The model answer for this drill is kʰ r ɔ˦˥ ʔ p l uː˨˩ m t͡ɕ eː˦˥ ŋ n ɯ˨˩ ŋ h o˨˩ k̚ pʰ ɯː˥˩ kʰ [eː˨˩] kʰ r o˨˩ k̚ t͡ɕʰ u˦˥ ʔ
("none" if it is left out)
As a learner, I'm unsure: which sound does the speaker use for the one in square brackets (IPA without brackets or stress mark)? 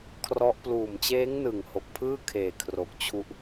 eː˨˩